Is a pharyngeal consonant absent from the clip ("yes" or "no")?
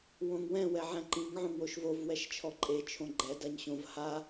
no